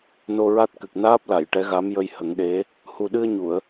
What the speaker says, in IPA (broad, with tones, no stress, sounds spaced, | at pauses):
n o˧ ɹ a˦˥ t̚ k ɨ˨˩ k̚ n aː˦˥ p̚ l a˨˩˨ j ʈ ɛ˧˥ ɣ a˧˥ m j ə˧ j h ə˨˩˦ ŋ ɗ e˧˥ | h u˨˩ ɗ ɨ˧ ə̯ ɲ u˨˩˨ ə̯